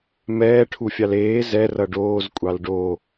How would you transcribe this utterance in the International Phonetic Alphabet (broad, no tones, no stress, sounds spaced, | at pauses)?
m ɛː ʈʰ u fʲ ɑ l eː z ɛ r ʌ ɖ oː z kʷʼ ɑ l ɖ o